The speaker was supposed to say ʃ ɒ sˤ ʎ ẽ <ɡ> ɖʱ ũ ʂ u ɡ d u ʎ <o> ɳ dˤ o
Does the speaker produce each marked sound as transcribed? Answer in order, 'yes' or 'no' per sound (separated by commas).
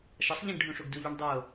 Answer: yes, no